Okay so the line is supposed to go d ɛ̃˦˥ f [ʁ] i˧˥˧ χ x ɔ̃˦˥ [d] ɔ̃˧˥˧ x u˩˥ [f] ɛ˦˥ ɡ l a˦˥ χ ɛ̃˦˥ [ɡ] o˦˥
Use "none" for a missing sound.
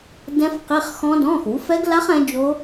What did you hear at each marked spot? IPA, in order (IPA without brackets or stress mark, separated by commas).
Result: q, d, f, d͡ʒ